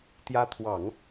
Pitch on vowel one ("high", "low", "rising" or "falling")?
rising